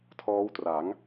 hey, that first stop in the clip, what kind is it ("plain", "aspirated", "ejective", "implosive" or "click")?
aspirated